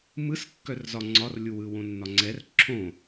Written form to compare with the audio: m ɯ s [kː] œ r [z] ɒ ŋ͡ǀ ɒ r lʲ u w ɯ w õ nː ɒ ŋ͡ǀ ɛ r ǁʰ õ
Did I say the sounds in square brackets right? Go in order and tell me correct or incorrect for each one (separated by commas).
correct, correct